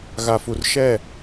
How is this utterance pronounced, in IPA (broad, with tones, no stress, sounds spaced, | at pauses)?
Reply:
ɣ a˨ f u˨ r ʃ ɛ˦˨